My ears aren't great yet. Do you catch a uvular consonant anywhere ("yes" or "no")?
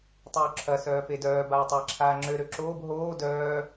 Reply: no